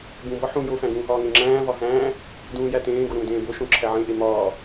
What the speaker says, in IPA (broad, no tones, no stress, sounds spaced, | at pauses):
b ũ b ɒ ħ ũ j o f æ̃ ɡ ũː ɦ ɒː ŋ ẽ ŋ͡ǁ æ̃ː v ɒ ɦ æ̃ː | d ũː j æ t ẽː ɡ o ɾ ũː d ẽː b o ʃ õ ǁʰ æ ʕ ẽ ʔ e m ɒː